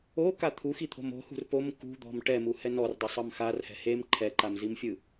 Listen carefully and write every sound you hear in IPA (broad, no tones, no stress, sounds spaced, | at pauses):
o k a t̪ʰ u x i t̪ʰ o̤ m o̤ h ṳ r p o m k ṳ d̪ ɔ̤ m ʈ ɛ m u h ɛ n ɔ r dˤ ɯ sˤ ɤ m x a r h ɛ̤ h e m ǃʰ ɛ ǃ a m z i m fʲ ɯ